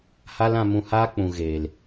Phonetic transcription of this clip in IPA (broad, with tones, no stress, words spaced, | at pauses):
ha˦lã˧mũ˧haː˦ k͡pũ˨ɣeː˨l